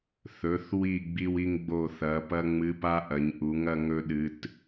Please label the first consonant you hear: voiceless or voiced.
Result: voiceless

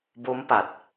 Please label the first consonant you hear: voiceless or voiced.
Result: voiced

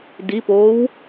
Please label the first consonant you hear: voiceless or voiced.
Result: voiced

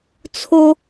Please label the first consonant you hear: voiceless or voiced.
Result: voiceless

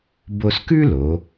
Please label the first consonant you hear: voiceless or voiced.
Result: voiced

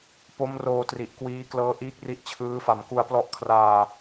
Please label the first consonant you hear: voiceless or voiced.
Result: voiceless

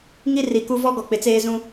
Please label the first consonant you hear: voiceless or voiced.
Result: voiced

